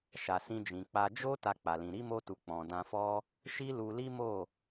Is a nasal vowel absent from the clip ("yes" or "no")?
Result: no